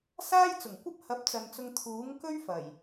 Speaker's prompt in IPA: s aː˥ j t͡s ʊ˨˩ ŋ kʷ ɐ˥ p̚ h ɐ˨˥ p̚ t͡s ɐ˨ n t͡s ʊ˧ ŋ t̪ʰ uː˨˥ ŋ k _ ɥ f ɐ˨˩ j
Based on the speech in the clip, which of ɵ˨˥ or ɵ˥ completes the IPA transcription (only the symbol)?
ɵ˥